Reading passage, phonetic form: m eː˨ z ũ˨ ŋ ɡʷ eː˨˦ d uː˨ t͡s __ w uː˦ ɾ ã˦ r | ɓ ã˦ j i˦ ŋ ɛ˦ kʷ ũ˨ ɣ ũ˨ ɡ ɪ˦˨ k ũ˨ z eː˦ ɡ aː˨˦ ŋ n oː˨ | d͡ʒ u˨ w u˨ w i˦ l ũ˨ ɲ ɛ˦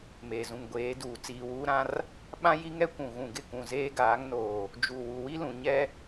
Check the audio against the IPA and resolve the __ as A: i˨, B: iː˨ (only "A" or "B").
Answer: B